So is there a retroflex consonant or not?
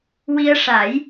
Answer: yes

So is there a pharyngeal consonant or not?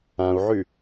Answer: yes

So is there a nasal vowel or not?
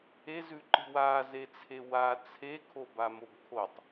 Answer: no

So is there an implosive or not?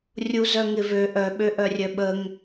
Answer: yes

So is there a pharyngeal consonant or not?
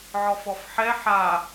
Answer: yes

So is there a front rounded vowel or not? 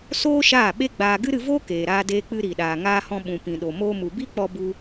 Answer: no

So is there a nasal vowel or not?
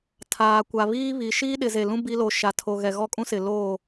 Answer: yes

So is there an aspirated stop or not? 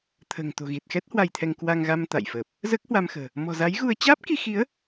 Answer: yes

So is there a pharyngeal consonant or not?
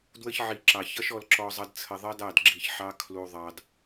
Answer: yes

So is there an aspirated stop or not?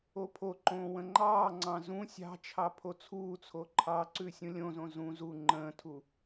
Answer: yes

